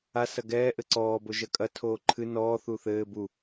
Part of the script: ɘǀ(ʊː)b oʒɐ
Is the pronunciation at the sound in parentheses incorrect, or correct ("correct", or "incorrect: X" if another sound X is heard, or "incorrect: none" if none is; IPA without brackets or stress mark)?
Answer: incorrect: ɔː